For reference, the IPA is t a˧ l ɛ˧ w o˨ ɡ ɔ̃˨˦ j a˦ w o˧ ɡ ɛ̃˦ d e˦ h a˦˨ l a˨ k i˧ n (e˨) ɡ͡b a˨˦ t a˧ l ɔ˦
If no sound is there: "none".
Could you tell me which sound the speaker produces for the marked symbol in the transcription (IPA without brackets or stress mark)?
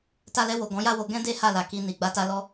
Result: i˨